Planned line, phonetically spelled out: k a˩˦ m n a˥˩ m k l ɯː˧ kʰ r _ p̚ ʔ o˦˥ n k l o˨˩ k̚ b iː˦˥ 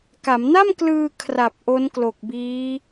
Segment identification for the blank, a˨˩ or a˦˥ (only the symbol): a˨˩